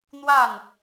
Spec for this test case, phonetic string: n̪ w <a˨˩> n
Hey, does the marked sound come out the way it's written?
no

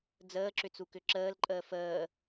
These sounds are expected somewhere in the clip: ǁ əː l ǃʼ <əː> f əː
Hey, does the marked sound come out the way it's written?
yes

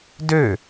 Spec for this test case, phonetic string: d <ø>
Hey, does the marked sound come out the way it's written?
yes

